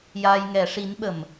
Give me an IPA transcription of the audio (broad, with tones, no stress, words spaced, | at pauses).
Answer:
jaː˧jŋɛ˨˩˦ ʂi˧˥nɓə˨˩m